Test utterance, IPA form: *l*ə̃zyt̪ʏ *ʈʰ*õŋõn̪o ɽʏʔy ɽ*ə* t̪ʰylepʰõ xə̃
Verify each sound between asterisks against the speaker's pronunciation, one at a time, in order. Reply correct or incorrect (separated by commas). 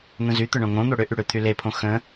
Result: incorrect, incorrect, incorrect